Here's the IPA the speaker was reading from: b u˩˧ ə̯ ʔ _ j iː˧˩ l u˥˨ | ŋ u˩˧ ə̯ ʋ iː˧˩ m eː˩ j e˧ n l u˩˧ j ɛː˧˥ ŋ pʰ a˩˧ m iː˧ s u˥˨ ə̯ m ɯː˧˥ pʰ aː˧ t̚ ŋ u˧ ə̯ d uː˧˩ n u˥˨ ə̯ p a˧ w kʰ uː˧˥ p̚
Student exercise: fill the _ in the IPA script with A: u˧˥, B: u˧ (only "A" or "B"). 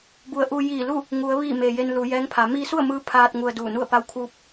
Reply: B